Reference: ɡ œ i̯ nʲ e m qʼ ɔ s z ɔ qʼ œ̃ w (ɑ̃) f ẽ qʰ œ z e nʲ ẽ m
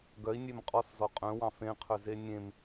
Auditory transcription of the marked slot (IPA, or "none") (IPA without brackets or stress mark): ɑ̃